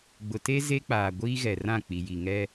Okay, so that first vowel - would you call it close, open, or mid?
close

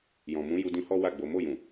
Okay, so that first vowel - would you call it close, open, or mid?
mid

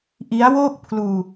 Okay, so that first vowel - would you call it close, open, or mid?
close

